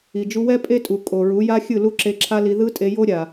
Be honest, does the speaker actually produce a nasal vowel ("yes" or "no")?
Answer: no